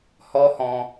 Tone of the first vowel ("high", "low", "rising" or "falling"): high